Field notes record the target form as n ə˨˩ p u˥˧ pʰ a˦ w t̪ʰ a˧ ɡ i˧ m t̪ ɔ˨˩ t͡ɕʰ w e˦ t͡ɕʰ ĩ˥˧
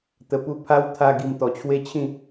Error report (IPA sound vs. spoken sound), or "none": n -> t̪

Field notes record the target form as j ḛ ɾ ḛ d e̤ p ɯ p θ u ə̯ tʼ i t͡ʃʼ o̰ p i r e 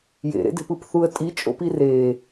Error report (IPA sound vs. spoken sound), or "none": none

